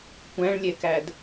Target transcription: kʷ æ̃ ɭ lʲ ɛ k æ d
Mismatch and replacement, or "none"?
none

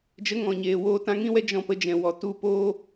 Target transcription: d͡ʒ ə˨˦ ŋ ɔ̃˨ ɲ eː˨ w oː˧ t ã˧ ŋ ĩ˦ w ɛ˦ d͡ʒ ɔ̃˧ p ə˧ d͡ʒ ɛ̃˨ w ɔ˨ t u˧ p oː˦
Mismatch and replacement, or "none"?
none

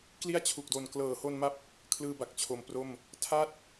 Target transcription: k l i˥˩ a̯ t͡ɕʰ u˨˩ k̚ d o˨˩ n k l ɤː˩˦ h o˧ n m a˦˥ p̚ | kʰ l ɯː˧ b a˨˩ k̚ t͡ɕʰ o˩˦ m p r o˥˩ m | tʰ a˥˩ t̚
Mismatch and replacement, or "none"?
none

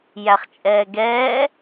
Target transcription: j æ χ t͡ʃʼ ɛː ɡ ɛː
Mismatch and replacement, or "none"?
none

